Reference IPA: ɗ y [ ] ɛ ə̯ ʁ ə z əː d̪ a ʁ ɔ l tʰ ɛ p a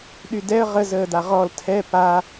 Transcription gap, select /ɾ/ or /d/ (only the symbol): d